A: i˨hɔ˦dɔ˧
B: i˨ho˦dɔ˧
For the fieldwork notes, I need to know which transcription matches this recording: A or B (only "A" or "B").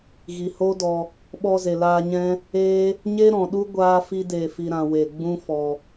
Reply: B